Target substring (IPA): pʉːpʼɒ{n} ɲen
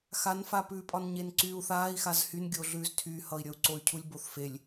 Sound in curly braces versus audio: correct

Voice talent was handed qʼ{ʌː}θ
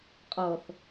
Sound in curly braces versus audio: correct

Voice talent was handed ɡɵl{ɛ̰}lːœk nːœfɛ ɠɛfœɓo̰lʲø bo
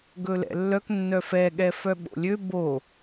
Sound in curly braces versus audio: correct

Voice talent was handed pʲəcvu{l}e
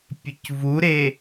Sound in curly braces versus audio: incorrect: ɾ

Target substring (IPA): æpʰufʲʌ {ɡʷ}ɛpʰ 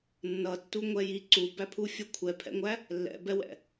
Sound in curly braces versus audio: incorrect: kʷʰ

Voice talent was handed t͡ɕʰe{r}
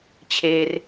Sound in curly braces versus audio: correct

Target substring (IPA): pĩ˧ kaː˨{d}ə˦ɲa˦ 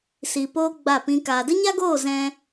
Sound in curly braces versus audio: correct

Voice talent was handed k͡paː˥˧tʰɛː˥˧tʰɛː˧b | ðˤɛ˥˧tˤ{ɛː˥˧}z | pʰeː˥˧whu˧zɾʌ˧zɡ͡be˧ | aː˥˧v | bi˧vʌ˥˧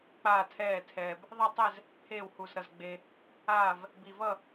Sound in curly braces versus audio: incorrect: ɛ˥˧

